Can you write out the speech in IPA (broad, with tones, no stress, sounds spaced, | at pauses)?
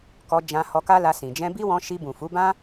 k ɔ˧ d͡ʒ ã˧ h ɔ˧ k a˦ l a˧ s ĩ˨ d͡ʒ ɛ̃˧ b i˦ w ɔ̃˧ ʃ i˧ b ũ˨ f u˨˦ b ã˦